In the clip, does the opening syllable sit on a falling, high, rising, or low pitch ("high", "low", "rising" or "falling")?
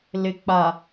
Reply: low